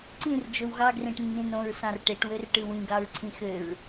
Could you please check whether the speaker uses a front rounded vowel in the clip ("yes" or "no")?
yes